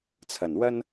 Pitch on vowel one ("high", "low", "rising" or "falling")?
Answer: low